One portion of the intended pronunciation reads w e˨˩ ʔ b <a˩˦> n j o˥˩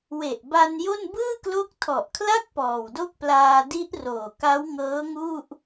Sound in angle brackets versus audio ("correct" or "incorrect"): incorrect